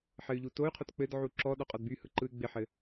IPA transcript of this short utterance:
ħɘy̯ʎutoy̯qʰot k͡pɘdʕu ǁɔ ɗɔqʼɔdbyhɯ ǃɯy̯ɡ͡bɪħɘ

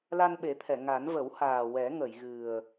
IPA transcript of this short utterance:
la˧nɓe˨˩˦t̪ʰɛ˨˩˨ ŋa˨˩˦n və˨˩˦whaː˨˩ wɛ˨˩˦ŋə˨˩˨jɣɨ˨˩ə̯

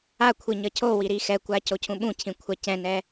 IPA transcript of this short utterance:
a kʷʰiɲʌcʰowi ɾixɛkʷa cocʰũɓũcʰĩ kʷʰacɛ̃nɛ

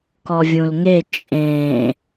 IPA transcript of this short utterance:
kɔvʲũlŋe t͡ʃʼẽ

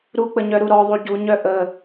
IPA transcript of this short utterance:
ɾuk͡pəɲœ ɾuɾɔðˤu ɟuɲœ ʔə

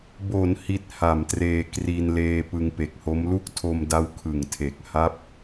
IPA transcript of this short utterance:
bo˩˦n hi˦˥t̚ha˨˩mtreː˧ kri˧nleː˧ pɯ˧ŋpe˨˩k̚ho˦˥m lu˥˩k̚tʰo˧mda˦˥w kʰɯ˨˩ŋtʰe˨˩k̚ ha˦˥p̚

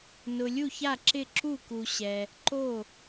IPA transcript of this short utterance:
nʊ˨ lʲu˥˩ça˥˩ǁɪ˥˩ ǁu˥˩ku˨ ɕɛ˨ | ǃo˥˩

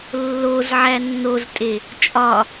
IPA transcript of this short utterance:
lːozʕæ nːoztʼe | t͡ʃʼɒ

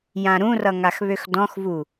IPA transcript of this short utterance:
jãɾũrʌ ŋaxβøxdɔ̃xvu

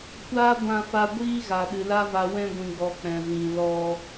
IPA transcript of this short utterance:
kʷaː˦ɡʷã˧fa˧ ɡʷiː˦ɣa˨ ɗɨ˨la˦va˧ wɛ̃˧ɡʷĩ˨ɡ͡bɔ˨ k͡pɛ̃˨vĩ˨ lɔ˧

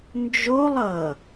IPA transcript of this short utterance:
nd͡ʒolˠ ʌ

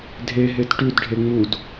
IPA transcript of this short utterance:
dʱeɦet ʈʉdɖʱe ŋ͡mud

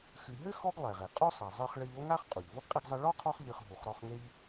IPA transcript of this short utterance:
xɨ˨ɦɘ˥ xɔ˥ɡ lˠɛ˩ʁe˩ qʼo˥sˤɐ˨ zˤɨ˦χɭɘ˦ʎ o˥ŋa˥χ qʼu˩ʎvo˥ɡqʼi˦ɡzˤɐ˦ ɭɔ˥qʰɔ˦χ ʎɨ˨χ ɦu˨χɾɔ˦χŋe˥ʎ

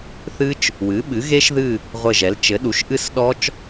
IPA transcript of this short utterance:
θɨ˦˥t͡ʃ | wɨ˩˥ɓɨ˩˥ɣe˦˥ʃðɨ˦˨ | ʁʷɘ˦˨ʒɛ˩˥l t͡ʃɘ˩˥ɗu˩˥ʃ ʔɨ˦˥sɗɔ˦˥t͡ʃ

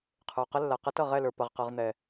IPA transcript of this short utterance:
qʰə˞˨o̯qə˦lːa˨ qɐ˦tʌ˦˨ʁɛ˦˨lə˞˨ pɐ˨ʁqɤ˨ʁ n̪ɛ˨

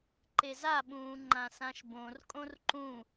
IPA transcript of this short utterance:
ǃezaɓũː ŋ͡ǃãsãʃbõrkʼõr ǃũ

